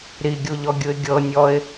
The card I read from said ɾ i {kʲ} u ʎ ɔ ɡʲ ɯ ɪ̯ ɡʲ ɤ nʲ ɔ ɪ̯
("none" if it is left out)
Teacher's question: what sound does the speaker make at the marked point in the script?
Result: ɡʲ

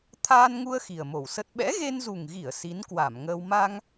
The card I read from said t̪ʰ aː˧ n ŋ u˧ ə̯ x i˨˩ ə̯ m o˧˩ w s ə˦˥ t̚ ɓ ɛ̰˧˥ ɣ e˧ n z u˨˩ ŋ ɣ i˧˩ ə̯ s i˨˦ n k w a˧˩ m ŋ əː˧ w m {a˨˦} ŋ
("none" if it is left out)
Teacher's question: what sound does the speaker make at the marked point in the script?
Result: a˧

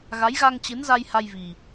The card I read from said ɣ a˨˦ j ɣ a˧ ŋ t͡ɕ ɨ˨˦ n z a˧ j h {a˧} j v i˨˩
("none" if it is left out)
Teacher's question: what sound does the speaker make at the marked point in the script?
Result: a˧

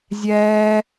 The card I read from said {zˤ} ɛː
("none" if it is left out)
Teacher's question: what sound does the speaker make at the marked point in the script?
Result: zʲ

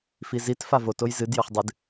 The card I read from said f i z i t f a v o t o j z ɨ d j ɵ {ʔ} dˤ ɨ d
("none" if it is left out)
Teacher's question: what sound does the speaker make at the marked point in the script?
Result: χ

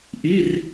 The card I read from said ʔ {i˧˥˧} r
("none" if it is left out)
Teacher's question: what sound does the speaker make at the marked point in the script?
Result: i˧˥˧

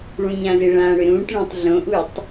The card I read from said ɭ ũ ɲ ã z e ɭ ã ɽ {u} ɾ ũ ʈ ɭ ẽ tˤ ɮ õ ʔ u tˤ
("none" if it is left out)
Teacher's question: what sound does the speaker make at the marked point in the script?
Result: ʏ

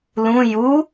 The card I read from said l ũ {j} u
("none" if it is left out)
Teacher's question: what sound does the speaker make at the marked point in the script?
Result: j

